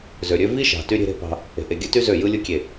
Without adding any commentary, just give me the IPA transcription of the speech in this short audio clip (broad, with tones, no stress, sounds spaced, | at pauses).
z ø˨ ɾʲ ø˦ v i˦ ʃ ɑ̤˨ t y˦ ɾʲ e̤˦ ɾ e̤˦ p ɑ̤˦ | e̤˨ ʔ e˨ ɡʲ ɯ˦ t y˦ z ø˦˨ j ɯ˦ lʲ ɯ˦ kʲ e˦˨